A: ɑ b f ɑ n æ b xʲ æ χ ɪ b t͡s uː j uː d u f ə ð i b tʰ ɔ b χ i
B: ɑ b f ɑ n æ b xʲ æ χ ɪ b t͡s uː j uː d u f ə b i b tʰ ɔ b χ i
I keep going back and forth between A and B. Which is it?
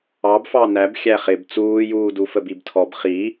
B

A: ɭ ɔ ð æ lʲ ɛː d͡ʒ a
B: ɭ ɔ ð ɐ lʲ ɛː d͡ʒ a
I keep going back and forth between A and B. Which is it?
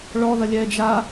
B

